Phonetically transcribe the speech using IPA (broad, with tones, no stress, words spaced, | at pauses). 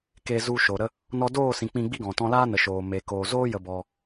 ke˧zu˧ʃo˨ɾə˦ | nɔ˧doː˦˨sĩ˨ k͡pĩ˧ɡ͡bi˦ɡɔ̃˨ tɔ̃˧laː˦nə˨ ʃoː˨me˨ koː˨zoː˦ jə˧bɔ˧